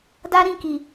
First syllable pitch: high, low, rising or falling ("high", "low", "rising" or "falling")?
high